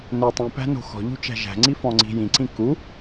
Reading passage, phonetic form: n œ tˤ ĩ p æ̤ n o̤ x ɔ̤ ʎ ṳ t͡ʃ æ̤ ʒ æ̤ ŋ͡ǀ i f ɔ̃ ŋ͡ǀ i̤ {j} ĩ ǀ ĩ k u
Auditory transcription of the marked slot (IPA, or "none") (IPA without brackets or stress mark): j